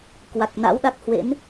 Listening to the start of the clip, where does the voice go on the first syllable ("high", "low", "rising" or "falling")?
low